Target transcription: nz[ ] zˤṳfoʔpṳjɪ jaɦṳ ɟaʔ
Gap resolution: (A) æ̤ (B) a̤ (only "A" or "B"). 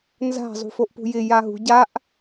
B